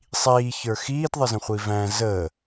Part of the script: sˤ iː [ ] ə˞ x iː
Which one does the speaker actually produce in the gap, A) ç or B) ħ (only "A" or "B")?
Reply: A